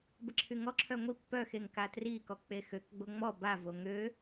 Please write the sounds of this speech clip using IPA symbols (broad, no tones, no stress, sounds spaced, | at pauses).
b ə ǁʰ y ŋ ɔ ǁʰ œ ŋʷ i pː œ x e ŋ k a t r i k ɔ k͡p e x ø k ɡ͡b o ŋ͡m ɔ b a v o ŋ ø